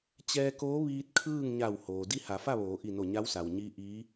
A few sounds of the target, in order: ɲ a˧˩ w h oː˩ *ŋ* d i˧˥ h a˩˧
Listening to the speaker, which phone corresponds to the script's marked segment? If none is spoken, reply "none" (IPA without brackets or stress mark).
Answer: none